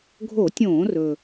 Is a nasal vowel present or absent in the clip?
present